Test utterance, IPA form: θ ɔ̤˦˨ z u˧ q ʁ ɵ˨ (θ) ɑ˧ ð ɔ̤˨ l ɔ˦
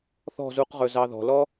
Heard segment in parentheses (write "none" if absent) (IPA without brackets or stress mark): z